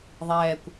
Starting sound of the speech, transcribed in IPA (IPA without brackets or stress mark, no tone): ðˤ